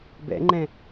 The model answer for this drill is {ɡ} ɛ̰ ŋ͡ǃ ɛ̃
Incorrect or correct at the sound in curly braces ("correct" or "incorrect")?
incorrect